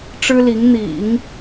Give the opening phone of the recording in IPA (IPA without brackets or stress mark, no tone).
ʈ͡ʂ